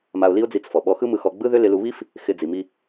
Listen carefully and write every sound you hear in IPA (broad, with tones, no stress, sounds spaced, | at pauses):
m a˧ ʊ̯ l i˥ ʊ̯ d͡z i˧ t͡s f ɔ˩ ɓ ɔ˧ x ɯ˥ m ɯ˧ x ɔ˧ ɡ͡b ɯ˥ ð ʏ˥ l ɪ˧ l u˧ β i˥ f | x ɪ˧ d͡z i˩ m i˧